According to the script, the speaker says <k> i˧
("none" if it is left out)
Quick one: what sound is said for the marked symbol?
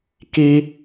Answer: k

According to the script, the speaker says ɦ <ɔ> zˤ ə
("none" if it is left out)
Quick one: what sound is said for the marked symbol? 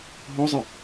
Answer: ɔ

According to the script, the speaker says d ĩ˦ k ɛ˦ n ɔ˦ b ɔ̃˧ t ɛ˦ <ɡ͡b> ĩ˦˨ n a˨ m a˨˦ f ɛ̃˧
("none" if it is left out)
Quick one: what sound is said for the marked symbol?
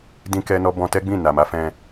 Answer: ɡ͡b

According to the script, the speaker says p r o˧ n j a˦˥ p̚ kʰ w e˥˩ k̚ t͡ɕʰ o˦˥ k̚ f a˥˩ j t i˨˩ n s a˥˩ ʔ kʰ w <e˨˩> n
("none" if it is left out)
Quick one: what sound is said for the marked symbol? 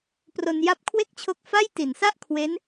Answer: e˦˥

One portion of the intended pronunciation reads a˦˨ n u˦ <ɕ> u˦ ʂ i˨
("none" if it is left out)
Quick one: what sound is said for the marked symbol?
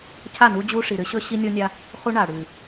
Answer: d͡ʑ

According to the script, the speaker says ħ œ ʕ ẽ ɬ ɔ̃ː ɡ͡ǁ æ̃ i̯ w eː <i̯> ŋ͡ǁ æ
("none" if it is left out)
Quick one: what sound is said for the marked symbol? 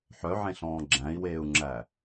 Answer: u̯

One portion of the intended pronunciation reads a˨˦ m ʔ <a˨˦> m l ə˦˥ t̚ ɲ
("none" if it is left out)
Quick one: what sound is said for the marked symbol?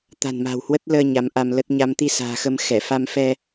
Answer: a˧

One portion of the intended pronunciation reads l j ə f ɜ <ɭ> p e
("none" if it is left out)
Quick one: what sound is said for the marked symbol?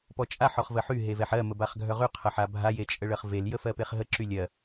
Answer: none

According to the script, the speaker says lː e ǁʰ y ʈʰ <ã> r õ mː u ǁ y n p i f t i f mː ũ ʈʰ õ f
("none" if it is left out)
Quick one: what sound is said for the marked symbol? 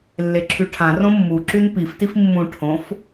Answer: ã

